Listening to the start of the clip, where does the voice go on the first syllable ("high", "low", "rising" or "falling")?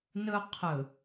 high